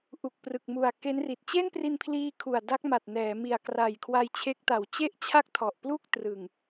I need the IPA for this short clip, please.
ʔ u˨˩ k̚ p r ɯ˨˩ k̚ m u˨˩ a̯ k e˦˥ n r i˨˩ t̚ t͡ɕ e˥˩ n p r i˧ n pʰ l iː˧ kʰ u˨˩ a̯ d a˦˥ k̚ m a˨˩ t̚ n ɛː˩˦ m i˨˩ a̯ k r a˨˩ j kʰ w a˧ j t͡ɕʰ e˦˥ k̚ t a˨˩ w t͡ɕ e˥˩ ʔ t͡ɕʰ a˥˩ k̚ tʰ ɔ˨˩ ʔ p l u˥˩ k̚ t r ɯ˨˩ ŋ

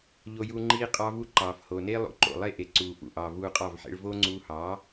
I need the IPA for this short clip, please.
ʎ o˦ j u˦ ŋ͡ǃ iː˦ qʼ ɑ˦ v u˦ ǃ ɑː˨ f h oː˨ n eː˦ lˠ ṵ˨ ǃ o̰˨ lˠ e˦ ʔ e˨ ǀ uː˨ f ṵ˨ ʔ ɑː˨ v uː˧ qʼ ɑ˦˨ v ħ ḛ˦ ɭ v oː˦ ŋ͡ǀ uː˧ h ɑː˨˦

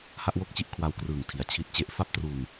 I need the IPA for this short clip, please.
h a˥˩ ʔ w o˥˩ k̚ t͡ɕ i˥˩ ʔ kʰ w a˧ w k r ɯː˨˩ ŋ tʰ i˩˦ a̯ t͡ɕʰ i˦˥ t̚ t͡ɕ e˦˥ ʔ f a˥˩ p̚ t r uː˧ n

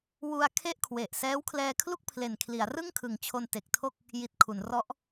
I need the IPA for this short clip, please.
w u˧ a̯ kʰ e˥˩ ʔ kʰ w e˨˩ ʔ s ɛː˦˥ w kʰ l ɛː˧ kʰ l u˥˩ k̚ pʰ l e˨˩ n kʰ l i˩˦ a̯ r ɯ˥˩ ŋ kʰ ɯ˩˦ ŋ t͡ɕʰ o˧ n t e˨˩ k̚ tʰ o˥˩ k̚ | j i˨˩ t̚ kʰ u˩˦ n r ɔ˦˥ ʔ

